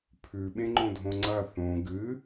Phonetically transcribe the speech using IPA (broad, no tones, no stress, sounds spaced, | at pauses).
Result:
pʰ ʉ ɓ ẽ ŋ͡ǃ õ dʱ õ ŋ͡ǀ ɐ θ õ ɡ ɨ